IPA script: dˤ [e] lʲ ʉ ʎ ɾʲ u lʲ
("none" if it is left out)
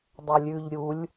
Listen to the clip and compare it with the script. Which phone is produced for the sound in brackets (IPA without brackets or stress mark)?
ɛ